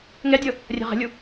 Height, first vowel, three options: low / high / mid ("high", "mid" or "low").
mid